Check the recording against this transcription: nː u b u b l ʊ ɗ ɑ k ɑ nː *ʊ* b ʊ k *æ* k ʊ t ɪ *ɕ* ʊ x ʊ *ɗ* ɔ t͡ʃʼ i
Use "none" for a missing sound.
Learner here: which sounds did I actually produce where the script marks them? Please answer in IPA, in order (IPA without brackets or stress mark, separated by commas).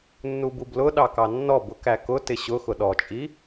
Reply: ɔ, æ, ɕ, ɗ